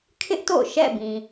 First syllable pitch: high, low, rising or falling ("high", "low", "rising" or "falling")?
high